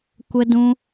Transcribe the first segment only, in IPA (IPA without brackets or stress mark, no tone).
kʷ